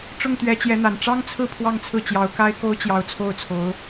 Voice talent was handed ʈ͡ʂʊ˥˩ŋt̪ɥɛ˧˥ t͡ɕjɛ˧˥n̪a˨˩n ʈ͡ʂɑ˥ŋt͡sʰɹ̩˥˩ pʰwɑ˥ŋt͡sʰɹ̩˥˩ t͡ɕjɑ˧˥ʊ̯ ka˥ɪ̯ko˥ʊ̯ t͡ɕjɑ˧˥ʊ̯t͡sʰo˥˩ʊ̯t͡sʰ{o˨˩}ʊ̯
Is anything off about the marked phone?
yes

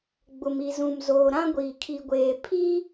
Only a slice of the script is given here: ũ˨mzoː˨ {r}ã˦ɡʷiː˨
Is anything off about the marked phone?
yes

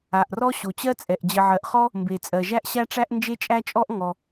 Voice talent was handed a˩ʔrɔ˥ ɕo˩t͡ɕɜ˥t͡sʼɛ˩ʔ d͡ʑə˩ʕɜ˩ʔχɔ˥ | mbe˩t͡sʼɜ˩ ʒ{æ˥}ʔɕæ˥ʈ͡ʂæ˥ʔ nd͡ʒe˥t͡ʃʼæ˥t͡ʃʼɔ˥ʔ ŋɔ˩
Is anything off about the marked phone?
no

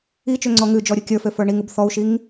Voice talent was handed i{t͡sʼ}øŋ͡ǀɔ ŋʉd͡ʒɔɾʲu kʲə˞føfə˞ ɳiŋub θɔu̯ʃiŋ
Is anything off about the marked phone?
yes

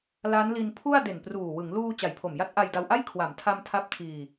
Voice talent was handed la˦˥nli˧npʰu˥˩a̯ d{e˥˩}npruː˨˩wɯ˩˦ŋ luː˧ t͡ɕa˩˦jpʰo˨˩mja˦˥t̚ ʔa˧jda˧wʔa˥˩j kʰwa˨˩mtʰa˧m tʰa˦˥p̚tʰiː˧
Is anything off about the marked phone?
yes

